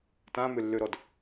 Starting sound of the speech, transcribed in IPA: t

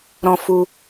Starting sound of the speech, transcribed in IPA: ɾ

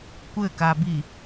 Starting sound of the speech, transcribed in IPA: kʷ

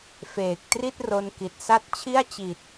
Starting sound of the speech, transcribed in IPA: f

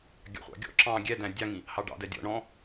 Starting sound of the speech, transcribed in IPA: ɡʲ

